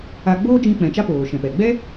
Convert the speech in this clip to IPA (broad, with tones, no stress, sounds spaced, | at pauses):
a˦ ɡ͡b oː˦ d͡ʒ ĩ˧ k͡p ɛ̃˨ t͡ʃ a˦ p oː˨ ʃ ɛ̃˨ p ɛ˨ ɡ͡b ɛ˦